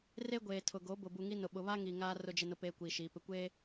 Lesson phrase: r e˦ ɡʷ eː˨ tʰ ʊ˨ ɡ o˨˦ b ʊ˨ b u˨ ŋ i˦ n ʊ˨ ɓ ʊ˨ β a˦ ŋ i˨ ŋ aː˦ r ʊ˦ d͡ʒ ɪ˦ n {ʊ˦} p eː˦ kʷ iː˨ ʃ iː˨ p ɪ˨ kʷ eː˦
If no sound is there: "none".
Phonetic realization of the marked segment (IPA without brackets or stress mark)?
ʊ˦